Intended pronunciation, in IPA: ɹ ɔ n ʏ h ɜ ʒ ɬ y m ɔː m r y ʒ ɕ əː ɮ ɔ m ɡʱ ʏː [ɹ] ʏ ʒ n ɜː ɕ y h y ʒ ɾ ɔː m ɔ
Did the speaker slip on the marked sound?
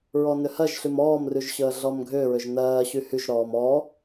no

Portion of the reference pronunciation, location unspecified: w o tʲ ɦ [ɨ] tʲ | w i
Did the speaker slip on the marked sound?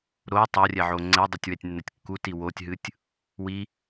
no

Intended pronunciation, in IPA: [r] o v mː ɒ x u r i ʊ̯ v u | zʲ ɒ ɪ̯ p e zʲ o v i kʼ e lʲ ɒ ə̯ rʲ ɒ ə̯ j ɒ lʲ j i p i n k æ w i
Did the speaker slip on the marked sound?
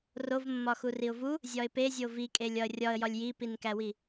no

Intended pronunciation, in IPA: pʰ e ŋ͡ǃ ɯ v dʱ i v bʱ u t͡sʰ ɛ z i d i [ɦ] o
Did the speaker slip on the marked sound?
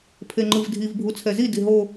no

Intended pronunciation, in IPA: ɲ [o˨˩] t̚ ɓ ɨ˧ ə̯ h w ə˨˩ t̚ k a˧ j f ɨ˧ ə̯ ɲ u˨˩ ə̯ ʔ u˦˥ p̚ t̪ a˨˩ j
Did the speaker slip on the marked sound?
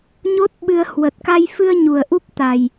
yes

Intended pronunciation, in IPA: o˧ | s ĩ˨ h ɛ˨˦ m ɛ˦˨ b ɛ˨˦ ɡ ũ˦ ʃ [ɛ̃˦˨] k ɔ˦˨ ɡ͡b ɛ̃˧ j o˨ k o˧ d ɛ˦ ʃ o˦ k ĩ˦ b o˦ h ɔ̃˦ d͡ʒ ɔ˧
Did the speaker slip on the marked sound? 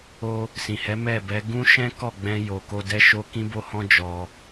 yes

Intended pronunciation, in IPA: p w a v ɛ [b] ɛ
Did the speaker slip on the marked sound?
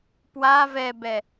no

